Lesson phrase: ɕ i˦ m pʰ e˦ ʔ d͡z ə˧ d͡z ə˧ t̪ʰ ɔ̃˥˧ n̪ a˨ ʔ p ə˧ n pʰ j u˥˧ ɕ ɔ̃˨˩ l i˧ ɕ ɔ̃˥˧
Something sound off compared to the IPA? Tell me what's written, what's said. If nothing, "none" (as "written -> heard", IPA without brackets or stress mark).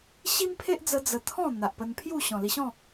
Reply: none